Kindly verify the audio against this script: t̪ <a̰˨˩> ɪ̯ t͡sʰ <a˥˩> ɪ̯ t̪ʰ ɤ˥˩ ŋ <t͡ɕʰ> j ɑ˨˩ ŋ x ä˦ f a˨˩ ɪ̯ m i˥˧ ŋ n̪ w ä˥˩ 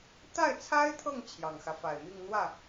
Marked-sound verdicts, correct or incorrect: incorrect: a˥˩, incorrect: a˥, correct

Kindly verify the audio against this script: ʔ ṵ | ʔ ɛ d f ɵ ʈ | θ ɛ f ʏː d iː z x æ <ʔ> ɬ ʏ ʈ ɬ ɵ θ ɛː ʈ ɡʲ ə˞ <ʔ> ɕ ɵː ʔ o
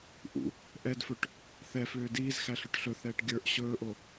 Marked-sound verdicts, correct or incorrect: incorrect: none, correct

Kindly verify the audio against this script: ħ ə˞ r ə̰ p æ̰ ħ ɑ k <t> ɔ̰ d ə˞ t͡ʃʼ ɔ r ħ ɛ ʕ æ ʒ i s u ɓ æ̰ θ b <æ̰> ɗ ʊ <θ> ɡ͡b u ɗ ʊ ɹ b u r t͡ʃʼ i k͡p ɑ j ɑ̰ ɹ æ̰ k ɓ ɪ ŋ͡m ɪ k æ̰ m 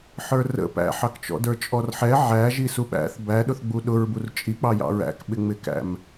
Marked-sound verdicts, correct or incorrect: incorrect: t͡ʃ, incorrect: æ, correct

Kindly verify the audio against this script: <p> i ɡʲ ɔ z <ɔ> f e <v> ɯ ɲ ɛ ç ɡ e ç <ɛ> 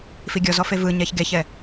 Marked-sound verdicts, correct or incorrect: incorrect: f, correct, correct, correct

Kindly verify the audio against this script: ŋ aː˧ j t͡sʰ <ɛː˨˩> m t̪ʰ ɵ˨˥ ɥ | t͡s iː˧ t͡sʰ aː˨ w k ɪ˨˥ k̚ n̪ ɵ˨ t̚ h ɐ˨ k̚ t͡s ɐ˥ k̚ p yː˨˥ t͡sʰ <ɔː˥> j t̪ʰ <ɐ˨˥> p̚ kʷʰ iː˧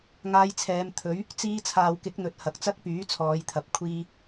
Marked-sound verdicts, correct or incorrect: incorrect: ɛː˨˧, incorrect: ɔː˨˧, correct

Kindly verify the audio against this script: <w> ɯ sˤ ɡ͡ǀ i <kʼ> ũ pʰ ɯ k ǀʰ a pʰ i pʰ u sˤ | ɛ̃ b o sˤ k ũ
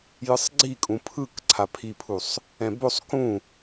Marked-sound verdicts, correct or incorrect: incorrect: j, correct

